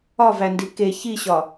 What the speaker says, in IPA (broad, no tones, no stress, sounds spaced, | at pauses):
ɒ v æ n d i k e ç i ɕ ɒ